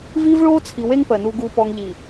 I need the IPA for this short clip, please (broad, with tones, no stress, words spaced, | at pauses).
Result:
viː˦vɭoː˦t͡sʰi˨ we˦ŋ pɜ˨ nuː˨ɡuː˨pɔ˨ŋ ʎi˨